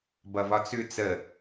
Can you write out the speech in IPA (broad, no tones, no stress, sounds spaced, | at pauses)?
b ʌ v ɒ t͡s ʉ t͡s ə